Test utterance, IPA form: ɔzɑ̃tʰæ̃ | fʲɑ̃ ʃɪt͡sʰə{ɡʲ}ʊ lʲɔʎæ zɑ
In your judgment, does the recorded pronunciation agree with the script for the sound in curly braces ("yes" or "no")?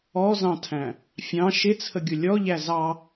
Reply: yes